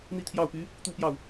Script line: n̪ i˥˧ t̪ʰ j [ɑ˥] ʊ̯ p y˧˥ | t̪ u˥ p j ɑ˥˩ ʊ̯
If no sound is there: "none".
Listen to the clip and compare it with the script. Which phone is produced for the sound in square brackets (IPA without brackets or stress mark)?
ɑ˥˩